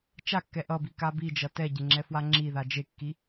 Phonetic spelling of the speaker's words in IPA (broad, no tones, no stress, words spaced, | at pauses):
t͡ʃakːɛ ʔʌbika bid͡ʒʌ tɛɟeŋ͡ǁɛfwa ŋ͡ǁiða d͡ʒekːi